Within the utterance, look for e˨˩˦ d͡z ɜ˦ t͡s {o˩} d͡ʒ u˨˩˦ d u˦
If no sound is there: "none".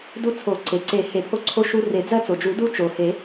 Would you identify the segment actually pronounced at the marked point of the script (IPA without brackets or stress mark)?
o˩